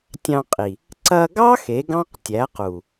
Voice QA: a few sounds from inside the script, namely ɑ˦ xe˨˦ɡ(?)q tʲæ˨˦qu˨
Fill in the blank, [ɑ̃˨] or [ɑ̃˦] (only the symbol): ɑ̃˦